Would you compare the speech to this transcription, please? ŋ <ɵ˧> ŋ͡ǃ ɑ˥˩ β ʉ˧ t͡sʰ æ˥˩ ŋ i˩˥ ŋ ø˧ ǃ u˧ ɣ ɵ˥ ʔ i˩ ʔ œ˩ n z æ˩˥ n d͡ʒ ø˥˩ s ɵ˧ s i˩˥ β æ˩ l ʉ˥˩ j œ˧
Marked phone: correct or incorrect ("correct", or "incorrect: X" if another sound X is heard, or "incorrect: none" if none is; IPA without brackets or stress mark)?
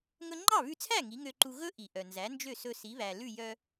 correct